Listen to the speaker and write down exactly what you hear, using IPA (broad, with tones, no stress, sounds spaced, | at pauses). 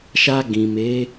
ʃ a˧ ɡ ĩ˨ m e˨˦